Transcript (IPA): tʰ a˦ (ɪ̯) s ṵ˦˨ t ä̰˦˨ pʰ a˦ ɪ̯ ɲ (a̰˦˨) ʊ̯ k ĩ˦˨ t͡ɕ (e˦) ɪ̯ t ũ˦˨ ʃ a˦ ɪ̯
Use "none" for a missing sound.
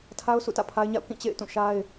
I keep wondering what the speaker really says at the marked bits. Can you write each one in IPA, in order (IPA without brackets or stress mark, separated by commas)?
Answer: ʊ̯, a̰˦˨, ḛ˦˨